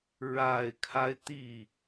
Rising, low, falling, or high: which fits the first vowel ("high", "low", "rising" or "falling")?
low